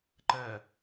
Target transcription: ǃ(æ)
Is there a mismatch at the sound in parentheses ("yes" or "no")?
yes